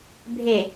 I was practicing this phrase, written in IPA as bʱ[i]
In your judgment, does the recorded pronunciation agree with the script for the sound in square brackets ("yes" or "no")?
no